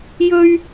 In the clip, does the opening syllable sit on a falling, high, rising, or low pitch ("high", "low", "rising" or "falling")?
high